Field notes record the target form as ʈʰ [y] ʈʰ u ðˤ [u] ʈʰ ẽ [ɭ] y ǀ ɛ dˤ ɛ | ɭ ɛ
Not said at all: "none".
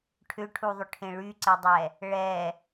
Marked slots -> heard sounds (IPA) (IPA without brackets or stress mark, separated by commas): ʏ, ʏ, ɭ